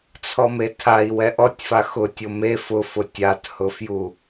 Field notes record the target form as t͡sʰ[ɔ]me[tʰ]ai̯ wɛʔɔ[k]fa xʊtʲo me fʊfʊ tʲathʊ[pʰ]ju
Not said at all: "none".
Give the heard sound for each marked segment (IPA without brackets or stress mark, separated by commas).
ɔ, tʰ, tʲ, f